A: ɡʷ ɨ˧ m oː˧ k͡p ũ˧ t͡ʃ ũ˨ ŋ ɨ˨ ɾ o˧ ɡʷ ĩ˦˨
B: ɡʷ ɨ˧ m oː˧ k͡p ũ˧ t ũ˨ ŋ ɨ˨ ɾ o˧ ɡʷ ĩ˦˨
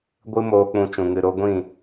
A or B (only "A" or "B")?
A